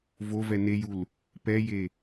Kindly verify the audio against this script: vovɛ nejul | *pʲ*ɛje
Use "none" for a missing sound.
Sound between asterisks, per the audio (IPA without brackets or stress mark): p